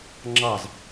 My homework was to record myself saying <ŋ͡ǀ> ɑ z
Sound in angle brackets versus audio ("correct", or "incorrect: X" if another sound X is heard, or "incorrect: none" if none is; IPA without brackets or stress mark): incorrect: ŋ͡ǁ